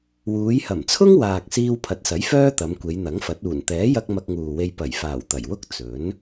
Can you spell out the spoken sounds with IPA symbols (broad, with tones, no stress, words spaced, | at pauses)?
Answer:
wuː˨˧jhɐ˨˩mt͡sʰʊ˥ŋ waː˨k̚ siː˧wpʰɐ˨˥t̚sɐ˨˥j fœː˥t̪ɐ˨˧m kʷe˨˧jn̪ɐ˨˥ŋfɐ˨˥t̚ uː˨˩nt̪ɛː˨˥jɐ˧k̚ mɐ˧k̚ŋuː˨we˧j pɐ˨˩jfaː˨˩w t̪ɐ˨˩jwʊ˥k̚ t͡sɵ˨˥n